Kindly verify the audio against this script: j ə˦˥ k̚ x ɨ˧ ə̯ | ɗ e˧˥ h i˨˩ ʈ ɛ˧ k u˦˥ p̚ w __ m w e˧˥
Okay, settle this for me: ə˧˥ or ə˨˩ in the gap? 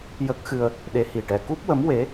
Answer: ə˧˥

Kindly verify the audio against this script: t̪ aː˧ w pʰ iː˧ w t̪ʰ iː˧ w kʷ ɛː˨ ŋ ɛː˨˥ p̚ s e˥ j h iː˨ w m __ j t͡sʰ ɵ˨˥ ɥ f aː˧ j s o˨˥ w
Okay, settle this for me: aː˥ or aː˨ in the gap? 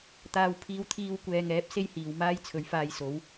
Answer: aː˥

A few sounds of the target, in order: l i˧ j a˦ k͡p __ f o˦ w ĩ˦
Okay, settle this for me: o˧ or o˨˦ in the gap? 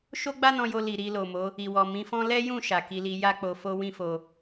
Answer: o˧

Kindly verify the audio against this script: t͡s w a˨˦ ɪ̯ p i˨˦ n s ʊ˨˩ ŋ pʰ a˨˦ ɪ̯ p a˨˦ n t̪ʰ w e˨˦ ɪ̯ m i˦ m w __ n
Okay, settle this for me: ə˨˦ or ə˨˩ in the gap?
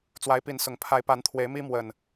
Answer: ə˨˩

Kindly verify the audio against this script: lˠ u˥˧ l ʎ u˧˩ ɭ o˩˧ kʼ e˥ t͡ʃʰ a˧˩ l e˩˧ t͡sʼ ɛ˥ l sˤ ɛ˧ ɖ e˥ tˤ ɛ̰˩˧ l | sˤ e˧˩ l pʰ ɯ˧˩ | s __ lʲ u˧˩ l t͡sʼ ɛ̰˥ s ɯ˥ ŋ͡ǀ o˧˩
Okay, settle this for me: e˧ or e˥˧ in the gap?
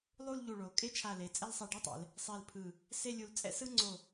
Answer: e˥˧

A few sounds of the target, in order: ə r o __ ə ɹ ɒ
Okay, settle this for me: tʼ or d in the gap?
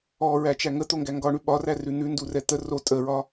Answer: tʼ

